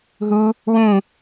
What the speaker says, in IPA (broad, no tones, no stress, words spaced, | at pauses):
ɦu | wũ